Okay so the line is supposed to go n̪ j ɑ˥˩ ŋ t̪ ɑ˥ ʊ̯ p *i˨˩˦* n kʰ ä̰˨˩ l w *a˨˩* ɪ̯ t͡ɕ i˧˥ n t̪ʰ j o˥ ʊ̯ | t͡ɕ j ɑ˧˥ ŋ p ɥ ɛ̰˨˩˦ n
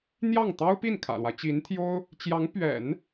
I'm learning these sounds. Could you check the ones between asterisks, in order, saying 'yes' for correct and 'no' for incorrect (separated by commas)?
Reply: no, no